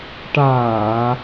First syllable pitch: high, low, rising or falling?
low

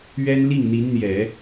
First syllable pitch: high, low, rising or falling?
high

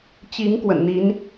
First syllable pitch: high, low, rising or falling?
rising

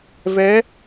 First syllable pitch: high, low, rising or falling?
rising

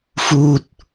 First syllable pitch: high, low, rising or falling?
low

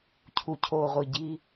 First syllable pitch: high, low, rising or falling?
low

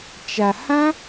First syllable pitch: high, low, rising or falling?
low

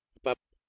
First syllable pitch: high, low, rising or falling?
low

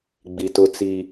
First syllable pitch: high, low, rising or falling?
low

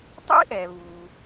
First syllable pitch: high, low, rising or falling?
high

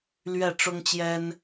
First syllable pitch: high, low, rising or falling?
falling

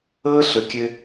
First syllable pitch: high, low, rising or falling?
high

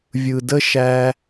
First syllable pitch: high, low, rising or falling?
low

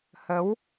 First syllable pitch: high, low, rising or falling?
rising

